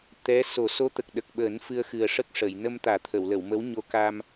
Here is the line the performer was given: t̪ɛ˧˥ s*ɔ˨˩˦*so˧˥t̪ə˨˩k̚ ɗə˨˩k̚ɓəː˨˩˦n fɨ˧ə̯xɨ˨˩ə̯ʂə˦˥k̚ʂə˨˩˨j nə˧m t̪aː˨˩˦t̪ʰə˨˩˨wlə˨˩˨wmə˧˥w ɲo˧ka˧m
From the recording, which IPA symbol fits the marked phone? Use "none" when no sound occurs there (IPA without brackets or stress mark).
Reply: o˨˩˦